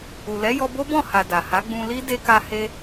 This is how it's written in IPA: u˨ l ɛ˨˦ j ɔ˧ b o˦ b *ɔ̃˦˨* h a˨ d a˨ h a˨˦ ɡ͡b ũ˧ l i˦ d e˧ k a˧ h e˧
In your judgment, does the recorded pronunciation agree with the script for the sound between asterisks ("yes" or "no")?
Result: yes